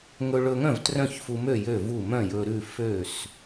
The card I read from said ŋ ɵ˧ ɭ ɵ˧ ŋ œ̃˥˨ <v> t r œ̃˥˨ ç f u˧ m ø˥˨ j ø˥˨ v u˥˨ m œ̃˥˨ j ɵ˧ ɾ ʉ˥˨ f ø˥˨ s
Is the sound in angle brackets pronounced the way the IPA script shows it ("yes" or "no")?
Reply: yes